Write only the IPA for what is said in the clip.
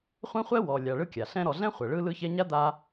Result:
χʷɛ̃˥χʷɛ˥wɔ˨lʲa˨ ɭɯ˦kʲa˩ɬɛ̃˦ ɾɔ˨ɮɛ̃˥χʷɛ˩ɭɯ˦ lɯ˦çɛ˦ɲa˥ d̪a˦

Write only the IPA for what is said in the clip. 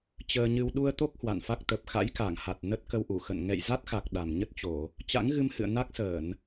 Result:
t͡ɕəː˧ɲɨ˧w ɗu˧ə̯t̪o˦˥k̚ hwa̰˧˨nfa˦˥k̚ t̪ə˨˩p̚xa̰˧˥jka˧˩ŋha˨˩t̚ nə˦˥t̚kə˧wʔu˧˩xə̰˧˨n ŋɛ̰˧˨jza˦˥t̚xa˨˩k̚ ɗa˨˩mɲə˦˥t̚t͡ɕo˧˩˨ | t͡ɕa̰˧˥ŋɣɨ˧mhɨ̰˧˨ə̯ na˦˥k̚səː˧˩˨n

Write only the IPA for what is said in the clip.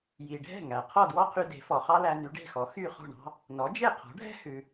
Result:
ji˩ɖʱɛ̤˥˩ ŋæ˩ qʰɔ˥˩dwɔ˥qʰy˧ de̤˩˥fɔ˩ χɑ˥læ˧ ny˩˥ɖe̤˥˩xɔ˩˥ xy˥˩χɔ̤˥˩ ɳɑ̤˥ | nɔ˩˥d͡ʒe˥˩qʰɔ̤˩˥ɖʱɛ̤˥ hʉ˩

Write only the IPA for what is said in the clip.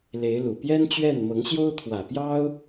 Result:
le˧˥ɪ̯lu˨˩ pjɛ˥nt͡ɕɥɛ˥˩n mɤ˧˥ŋɕjo˥ʊ̯t̪ʰwä˨˩ pjɑ˥ʊ̯

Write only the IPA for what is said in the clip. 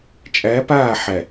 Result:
t͡ʃʼæ˨˦paː˦˨ ħæ˨

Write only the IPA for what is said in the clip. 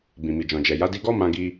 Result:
bĩ˨mi˨d͡ʒɔ̃˨d͡ʒɛ˨ ja˨˦di˧ɡɔ˦ mã˦ ɡi˧

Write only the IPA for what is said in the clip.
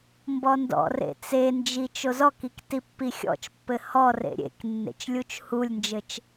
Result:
mbɔndɔ̰rḛ t͡send͡ʒi t͡ʃozɔkik tipːixʲɔ̰t͡ʃpːɘ hɔrḛ ɾʲḛk nːḛt͡ʃlʲut͡ʃhulʲnd͡ʒɘt͡ʃ

